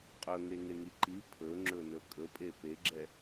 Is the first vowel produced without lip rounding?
no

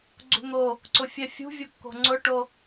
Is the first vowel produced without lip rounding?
no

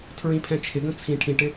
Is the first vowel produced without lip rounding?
yes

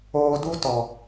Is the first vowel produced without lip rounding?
no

